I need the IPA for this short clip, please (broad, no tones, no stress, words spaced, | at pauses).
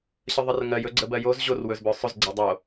ɕəðˤərŋɜj ɵɡ͡ǀəbɜjoz ʑor wɵzbœsˤɵz ɡ͡ǀɜdˤo